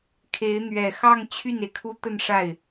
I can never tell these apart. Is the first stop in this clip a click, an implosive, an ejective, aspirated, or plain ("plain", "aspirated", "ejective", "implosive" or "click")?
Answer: aspirated